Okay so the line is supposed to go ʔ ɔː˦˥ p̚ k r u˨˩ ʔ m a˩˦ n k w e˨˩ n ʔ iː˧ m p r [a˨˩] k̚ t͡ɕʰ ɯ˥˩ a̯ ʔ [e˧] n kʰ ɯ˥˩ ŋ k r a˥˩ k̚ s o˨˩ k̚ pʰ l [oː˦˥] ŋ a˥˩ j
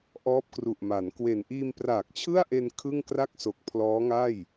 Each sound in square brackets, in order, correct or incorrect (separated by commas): incorrect, correct, incorrect